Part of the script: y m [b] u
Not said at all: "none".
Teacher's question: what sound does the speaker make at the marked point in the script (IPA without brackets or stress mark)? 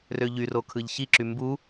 b